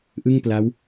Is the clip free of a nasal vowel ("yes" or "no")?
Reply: yes